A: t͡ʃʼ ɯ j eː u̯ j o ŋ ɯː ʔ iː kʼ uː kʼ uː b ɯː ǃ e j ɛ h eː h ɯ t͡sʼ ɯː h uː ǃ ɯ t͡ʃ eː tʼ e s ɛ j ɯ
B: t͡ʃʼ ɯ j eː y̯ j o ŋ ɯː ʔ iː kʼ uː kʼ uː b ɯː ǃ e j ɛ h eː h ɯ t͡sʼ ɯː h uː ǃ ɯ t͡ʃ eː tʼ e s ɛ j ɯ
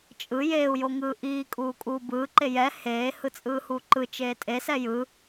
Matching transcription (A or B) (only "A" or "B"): A